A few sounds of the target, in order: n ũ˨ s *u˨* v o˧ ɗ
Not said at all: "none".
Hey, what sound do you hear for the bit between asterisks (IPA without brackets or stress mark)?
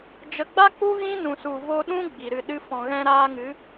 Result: u˨